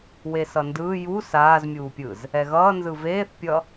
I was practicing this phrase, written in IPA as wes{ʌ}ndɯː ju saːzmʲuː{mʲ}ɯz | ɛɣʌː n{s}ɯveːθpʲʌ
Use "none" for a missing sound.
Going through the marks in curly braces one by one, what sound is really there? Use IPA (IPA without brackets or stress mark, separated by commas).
ʌ, pʲ, z